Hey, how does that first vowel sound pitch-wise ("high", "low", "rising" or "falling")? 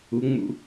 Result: rising